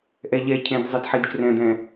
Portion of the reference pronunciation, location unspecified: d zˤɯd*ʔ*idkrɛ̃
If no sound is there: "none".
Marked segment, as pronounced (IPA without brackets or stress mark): ħ